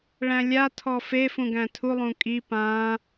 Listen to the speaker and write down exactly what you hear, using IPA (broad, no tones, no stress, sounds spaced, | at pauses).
ɭ æ̃ lʲ a tʰ ɔ f e f ũ ɡ æ̃ tʰ u lˠ ũ kʼ i p ã